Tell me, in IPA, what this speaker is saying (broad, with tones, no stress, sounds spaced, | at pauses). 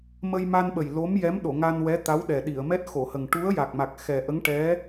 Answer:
m ə˧ j m a˧ n ɓ ə˨˩ j l o˧˥ m j ɛ˧˥ m ɗ o˨˩˨ ŋ a˧ n w ɛ˧˥ t̪ a˧˥ w ɗ ɛ˨˩ ɗ i˨˩˨ ə̯ m ɛ˦˥ t̚ x o˨˩˨ h ə˨˩ ŋ ʈ u˧˥ ə̯ j a˨˩ k̚ m a˨˩ k̚ x ɛ˨˩ ʔ ə˧˥ ŋ ʈ ɛ˧˥